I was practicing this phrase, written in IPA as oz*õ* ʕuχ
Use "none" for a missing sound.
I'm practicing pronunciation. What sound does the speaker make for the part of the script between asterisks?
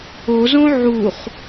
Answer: õ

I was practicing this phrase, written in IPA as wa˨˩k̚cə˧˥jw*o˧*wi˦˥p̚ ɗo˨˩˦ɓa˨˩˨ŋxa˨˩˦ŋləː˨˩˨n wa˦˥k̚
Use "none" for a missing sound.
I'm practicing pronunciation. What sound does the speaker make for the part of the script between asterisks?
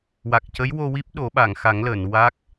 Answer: o˧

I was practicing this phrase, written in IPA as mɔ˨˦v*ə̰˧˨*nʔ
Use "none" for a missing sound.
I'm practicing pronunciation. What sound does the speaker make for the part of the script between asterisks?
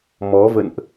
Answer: ə̰˧˨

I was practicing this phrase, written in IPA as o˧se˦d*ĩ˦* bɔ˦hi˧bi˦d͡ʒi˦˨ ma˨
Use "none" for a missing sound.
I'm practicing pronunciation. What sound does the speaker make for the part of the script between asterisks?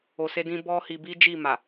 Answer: ĩ˦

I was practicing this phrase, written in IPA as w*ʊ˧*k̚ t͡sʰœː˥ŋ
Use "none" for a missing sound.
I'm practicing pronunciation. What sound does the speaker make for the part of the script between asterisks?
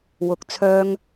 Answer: ʊ˧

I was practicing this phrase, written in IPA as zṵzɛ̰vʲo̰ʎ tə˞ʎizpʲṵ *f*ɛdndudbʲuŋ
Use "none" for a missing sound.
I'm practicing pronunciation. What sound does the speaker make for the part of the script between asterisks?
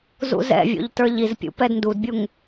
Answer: p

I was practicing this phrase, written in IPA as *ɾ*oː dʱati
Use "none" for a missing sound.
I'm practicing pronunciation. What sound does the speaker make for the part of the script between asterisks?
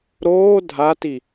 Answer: ɾ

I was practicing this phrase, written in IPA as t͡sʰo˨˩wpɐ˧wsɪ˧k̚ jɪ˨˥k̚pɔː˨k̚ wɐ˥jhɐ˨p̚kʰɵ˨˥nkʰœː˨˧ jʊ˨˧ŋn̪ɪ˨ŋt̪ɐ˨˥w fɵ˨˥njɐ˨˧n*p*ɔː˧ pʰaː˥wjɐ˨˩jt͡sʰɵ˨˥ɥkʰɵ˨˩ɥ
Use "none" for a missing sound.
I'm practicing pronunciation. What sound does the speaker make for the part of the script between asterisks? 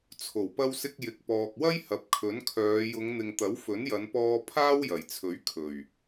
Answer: p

